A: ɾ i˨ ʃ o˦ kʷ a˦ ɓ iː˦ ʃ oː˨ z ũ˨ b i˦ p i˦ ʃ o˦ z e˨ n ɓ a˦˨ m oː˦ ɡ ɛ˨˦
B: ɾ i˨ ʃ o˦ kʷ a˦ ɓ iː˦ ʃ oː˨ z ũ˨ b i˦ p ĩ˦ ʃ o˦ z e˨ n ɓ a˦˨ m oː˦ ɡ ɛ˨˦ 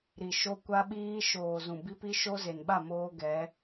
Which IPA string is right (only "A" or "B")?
A